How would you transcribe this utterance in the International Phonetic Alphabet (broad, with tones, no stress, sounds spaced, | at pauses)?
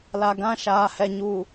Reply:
l a˨ ɡ ã˦˨ ʃ aː˨ h ɛ˨ ɲ uː˨